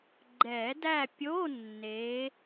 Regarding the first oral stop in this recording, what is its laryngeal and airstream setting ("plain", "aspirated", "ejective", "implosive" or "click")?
click